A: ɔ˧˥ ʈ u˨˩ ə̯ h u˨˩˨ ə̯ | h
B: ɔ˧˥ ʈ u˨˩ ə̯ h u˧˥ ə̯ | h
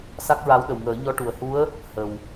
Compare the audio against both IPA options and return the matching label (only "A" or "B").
B